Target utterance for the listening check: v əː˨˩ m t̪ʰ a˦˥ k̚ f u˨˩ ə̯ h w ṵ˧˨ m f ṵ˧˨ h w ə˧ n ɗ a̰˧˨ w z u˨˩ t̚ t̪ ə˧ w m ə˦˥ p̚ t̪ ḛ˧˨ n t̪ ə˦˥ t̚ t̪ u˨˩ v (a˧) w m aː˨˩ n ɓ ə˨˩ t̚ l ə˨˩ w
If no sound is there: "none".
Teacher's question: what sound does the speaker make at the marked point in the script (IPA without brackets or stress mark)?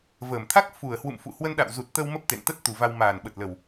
a˧